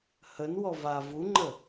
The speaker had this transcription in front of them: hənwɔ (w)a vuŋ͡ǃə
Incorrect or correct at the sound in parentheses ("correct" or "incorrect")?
incorrect